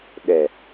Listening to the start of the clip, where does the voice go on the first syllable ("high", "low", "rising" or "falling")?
low